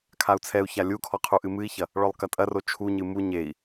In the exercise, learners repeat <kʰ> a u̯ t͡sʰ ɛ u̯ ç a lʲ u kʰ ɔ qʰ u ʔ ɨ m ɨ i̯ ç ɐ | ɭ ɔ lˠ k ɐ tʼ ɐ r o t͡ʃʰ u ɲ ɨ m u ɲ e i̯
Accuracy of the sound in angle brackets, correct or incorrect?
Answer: correct